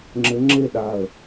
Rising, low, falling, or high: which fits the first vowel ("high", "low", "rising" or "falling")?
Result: rising